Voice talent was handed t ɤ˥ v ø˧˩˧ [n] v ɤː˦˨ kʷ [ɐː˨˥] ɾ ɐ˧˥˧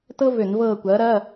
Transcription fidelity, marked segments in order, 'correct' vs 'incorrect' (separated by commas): correct, correct